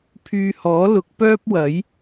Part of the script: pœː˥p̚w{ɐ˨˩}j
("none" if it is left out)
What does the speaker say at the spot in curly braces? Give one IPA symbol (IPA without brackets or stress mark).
ɐ˨˥